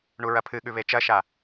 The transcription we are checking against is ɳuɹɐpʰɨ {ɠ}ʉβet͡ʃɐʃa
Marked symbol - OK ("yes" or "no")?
yes